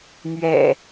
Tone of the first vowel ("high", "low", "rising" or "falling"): low